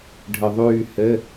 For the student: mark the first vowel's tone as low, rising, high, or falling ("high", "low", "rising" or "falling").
low